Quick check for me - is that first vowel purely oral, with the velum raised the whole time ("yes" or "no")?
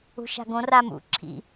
yes